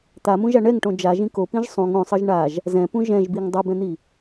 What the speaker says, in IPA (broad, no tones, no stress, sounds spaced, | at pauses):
t̪ a m ũ ʒ a ɳ ɛ ŋ ʈ õ d͡ʒ a ʒ ĩ k o p ĩ ʒ sˤ ũ ŋ õ sˤ ɤ ʒ ɳ a ʒ | z ɛ̃ p ũ ʒ ɛ̃ ʒ b i ŋ dˤ u b ɛ̃ n̪ i